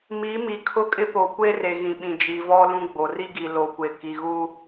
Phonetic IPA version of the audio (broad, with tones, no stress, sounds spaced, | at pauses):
m i˨˦ m i˨ kʰ ʊ˦ kʼ ɪ˦ p o˨ kʷ e˦ r e˨ ɣ ĩ˨ ɓ ĩ˨ d͡ʒ i˨ v ɔ˦ l ũ˦ ɡ͡b o˨ r i˦ ɡ i˨ l o˨˦ kʷ e˨ k i˨ ɣ u˦